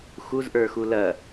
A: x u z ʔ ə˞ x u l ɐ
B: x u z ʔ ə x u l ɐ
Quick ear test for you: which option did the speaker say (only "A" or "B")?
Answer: A